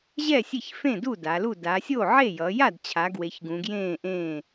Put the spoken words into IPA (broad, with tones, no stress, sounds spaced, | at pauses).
ʑ ɛ˥˩ sʲ e˥˩ ç f ẽ˥˩ d u˥˩ d a˩˧ l u˥˩ d a˩˧ sʲ o˥˩ ʕ e˥˩ j ʌ˩˧ j a˥˩ d t͡ɕʰ a˩˧ ɡ w e˩˧ ç ɡ ũ˩˧ ɡ j ẽː˥˩ ʔ ẽː˥˩